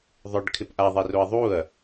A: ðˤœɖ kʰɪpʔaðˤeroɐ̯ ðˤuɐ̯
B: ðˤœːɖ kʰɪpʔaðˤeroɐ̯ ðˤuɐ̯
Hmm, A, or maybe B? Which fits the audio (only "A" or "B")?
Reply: A